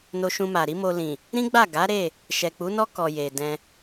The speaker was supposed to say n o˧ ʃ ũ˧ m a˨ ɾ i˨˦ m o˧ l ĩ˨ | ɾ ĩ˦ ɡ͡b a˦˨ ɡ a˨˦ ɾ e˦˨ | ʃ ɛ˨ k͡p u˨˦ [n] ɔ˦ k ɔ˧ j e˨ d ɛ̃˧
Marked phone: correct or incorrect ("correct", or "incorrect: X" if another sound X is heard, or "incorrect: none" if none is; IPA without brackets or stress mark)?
correct